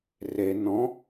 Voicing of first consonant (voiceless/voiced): voiced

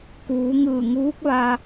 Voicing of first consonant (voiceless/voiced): voiceless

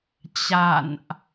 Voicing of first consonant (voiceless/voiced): voiceless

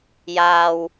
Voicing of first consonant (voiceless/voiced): voiced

